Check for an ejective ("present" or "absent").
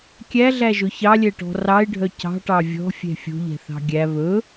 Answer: absent